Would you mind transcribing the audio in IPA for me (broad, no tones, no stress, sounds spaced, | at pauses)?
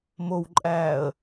m o w ǃʼ æː ə̯